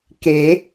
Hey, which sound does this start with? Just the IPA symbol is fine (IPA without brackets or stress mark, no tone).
k